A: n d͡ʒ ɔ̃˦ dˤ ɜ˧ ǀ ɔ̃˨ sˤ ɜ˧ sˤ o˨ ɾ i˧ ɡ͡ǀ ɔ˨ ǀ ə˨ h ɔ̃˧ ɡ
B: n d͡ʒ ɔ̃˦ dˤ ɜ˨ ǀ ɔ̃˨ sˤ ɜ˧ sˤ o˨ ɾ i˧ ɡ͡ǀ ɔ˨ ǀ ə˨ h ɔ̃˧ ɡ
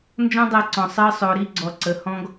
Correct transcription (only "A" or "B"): A